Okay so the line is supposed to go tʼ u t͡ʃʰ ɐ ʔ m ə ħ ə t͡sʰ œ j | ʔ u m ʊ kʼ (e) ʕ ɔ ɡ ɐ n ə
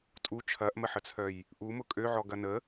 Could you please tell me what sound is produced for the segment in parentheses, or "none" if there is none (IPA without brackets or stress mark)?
ø